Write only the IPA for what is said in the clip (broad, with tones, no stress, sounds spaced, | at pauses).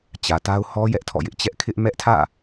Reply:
t͡ɕ ä˨ t a˦ ʊ̯ h ɔ˦ j ɛ˦ ʔ tʰ ɔ̰˦˨ j ɪ˦ ʔ t͡ɕ ɛ˦ ʔ kʰ ɪ˦ ʔ m ɛ˦ ʔ tʰ ä̰˦˨